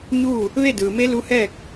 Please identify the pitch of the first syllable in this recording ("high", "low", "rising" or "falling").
falling